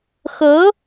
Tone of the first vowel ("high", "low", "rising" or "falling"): rising